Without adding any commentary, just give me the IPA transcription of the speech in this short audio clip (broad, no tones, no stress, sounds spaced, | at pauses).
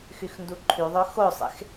x y x n d u ǃʰ y ðˤ ø x o sˤ ḛ x